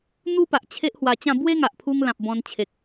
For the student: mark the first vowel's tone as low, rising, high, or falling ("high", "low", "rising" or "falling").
high